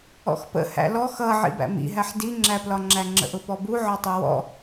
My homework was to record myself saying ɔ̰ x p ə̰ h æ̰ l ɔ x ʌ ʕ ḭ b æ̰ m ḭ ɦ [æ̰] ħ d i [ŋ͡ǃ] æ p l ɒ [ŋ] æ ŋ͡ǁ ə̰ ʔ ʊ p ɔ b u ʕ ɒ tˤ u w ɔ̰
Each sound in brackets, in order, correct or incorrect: incorrect: æ, incorrect: ŋ͡ǁ, incorrect: ŋ͡ǁ

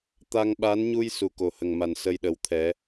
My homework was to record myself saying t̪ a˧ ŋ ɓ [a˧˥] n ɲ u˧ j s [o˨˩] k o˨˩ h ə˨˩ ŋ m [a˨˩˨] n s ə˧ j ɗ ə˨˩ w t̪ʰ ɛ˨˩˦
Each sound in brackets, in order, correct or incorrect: correct, incorrect: u˨˩, incorrect: a˨˩

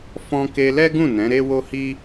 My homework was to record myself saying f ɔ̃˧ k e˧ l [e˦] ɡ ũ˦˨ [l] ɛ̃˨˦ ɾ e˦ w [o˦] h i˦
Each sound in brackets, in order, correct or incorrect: incorrect: ɛ˦, incorrect: n, correct

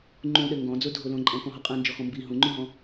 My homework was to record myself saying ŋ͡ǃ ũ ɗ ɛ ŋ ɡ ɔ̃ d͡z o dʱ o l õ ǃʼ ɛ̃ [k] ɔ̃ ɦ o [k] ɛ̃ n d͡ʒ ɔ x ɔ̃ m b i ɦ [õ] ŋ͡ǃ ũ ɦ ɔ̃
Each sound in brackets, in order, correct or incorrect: correct, incorrect: qʼ, incorrect: ũ

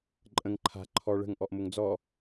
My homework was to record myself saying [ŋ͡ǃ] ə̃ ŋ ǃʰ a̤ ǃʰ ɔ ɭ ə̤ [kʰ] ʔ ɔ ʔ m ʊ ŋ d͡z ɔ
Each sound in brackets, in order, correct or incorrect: incorrect: ǃʼ, incorrect: ŋ

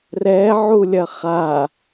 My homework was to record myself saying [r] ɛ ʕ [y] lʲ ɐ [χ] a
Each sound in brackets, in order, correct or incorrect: correct, incorrect: u, correct

